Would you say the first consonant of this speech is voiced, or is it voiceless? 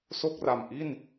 voiceless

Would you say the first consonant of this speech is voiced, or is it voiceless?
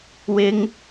voiced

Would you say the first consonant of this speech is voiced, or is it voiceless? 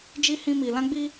voiced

